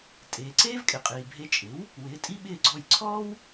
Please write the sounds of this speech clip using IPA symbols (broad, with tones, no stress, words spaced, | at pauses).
tʼeː˩ǀeː˥vkʼɪ˩qʼiː˩ bʱe˧t͡ʃʼɪ˩˥w | wɪː˩˥tʼi˥ ɓɪː˥˩ɡ͡ǀɔ˥˩j ǀʰɔː˥w